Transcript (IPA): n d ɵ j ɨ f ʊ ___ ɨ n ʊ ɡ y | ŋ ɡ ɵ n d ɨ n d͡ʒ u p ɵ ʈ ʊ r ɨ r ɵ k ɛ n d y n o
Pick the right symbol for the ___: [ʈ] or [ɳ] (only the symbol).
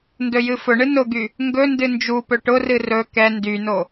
ɳ